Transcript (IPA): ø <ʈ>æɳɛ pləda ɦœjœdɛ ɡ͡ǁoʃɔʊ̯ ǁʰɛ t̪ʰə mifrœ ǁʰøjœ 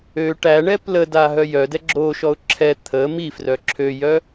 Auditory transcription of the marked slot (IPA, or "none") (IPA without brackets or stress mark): ʈ